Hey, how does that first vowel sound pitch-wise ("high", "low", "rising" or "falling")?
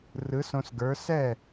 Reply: rising